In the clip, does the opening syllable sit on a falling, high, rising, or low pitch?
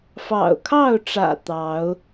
low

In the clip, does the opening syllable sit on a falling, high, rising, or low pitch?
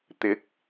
rising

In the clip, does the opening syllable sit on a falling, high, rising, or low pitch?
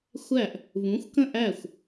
falling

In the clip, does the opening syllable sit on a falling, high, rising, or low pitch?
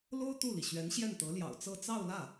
high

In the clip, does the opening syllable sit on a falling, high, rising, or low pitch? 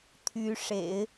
rising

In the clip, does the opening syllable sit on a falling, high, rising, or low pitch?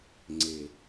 low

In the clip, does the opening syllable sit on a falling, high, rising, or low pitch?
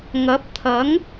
rising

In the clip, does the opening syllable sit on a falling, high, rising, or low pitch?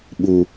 low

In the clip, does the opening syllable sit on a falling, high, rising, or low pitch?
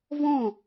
falling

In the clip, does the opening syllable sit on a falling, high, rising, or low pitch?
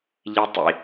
high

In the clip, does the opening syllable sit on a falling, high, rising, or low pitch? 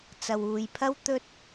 low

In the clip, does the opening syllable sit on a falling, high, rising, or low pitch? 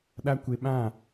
high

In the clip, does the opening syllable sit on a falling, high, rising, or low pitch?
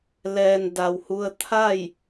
low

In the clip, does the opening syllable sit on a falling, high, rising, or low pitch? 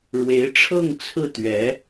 rising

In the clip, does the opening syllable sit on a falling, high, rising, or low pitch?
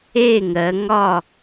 falling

